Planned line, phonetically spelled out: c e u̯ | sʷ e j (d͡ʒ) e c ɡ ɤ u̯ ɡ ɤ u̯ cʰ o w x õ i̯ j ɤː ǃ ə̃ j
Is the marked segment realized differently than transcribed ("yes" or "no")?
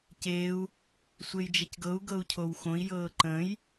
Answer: no